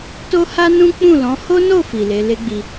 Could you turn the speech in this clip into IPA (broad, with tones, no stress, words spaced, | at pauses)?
to˦ha˦nũ˦ k͡pũ˦˨lɔ̃˨˦ ho˦no˦˨ fi˨ le˨˦ le˦ɡ͡bi˧